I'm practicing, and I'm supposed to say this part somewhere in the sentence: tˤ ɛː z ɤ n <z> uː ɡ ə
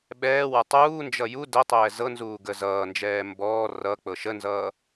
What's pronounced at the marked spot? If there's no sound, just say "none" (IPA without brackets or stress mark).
z